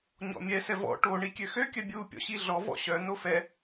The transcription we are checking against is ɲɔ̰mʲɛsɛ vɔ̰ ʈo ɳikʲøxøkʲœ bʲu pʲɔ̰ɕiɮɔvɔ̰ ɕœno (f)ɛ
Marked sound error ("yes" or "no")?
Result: no